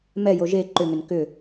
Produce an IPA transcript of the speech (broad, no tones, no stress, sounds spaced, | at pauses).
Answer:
m ɛ j o ʒ e ǃ ʏ ŋ ʏ n k ʏ